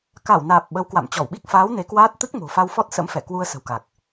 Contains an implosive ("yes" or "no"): yes